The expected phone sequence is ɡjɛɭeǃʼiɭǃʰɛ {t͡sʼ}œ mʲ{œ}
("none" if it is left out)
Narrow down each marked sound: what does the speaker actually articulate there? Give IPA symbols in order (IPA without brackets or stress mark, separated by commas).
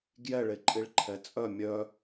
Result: t͡sʼ, œ